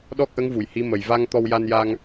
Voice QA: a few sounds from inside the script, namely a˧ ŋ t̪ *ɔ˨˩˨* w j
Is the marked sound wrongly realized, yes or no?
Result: yes